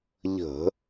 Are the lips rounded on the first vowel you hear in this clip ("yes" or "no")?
no